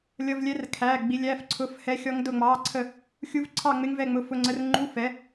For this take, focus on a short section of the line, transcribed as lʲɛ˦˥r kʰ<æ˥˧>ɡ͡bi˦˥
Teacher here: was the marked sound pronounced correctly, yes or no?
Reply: no